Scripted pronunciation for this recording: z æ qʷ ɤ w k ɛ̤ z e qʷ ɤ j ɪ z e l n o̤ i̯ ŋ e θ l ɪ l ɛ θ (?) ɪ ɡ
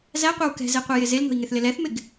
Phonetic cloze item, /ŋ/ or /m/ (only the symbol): m